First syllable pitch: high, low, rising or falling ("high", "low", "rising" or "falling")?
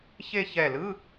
falling